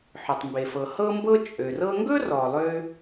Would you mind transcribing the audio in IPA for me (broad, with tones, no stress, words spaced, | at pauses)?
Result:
ħɵ˩tˤmbe˩fɤ˩ hɤ˥mbɤ˥ t͡ʃʼø˩rɤ˥ ŋɡɵ˥rɔ˩ lˠø˥